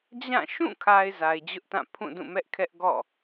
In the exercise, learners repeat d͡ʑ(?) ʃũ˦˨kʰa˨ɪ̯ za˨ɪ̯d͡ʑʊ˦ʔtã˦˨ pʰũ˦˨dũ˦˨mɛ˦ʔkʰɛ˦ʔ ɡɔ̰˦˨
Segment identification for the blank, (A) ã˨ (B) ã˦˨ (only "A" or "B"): B